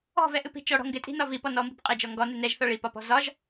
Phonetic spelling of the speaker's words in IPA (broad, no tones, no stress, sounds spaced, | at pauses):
ɔ̤ v ɛ ʔ ɨ p i̤ t͡ʃ ɔ ɽ ɔ̤ ŋ ɡ ɪ tʼ i̤ n ɒ v i p ɔ n ɔ m b i̤ p qʼ ɪ d͡ʒ ɔ ŋ ɡ ɔ n ɨ n ɛ ʒ θ ɒ ɭ i p ɒ p ɔ̤ z ɒ ʒ